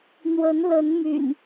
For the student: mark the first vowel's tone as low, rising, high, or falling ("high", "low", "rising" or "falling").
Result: rising